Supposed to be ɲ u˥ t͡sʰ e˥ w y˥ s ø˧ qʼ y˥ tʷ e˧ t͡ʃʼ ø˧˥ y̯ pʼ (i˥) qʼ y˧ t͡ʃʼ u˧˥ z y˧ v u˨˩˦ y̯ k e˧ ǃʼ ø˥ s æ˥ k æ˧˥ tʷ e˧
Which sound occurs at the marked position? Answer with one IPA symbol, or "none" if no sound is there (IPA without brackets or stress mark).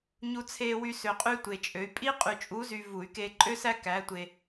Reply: i˥